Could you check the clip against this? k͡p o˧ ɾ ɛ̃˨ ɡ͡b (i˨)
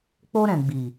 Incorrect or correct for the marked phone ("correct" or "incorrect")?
correct